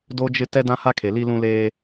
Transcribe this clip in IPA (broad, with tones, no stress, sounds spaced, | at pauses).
d o˦ d͡ʒ ɪ˦ t ɛ˦ d ã˦ h a˦ kʰ e˨ l i˦ l ũ˦ l eː˦